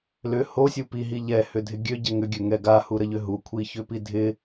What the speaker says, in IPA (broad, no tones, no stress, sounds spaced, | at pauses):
l ʏ h o sʲ u p i ɦ i ʎ ɛ h ʏ dʱ ɪ ɡʲ ø ɟ ɛ ŋ ʏ ɡʲ ø ŋ ɛ ɡ a h u ɾ ə ʎ ʏ ɦ u kʷʰ i ç ʏ p i dʱ ɪ